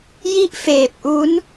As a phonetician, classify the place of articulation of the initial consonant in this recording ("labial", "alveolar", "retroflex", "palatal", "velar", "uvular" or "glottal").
palatal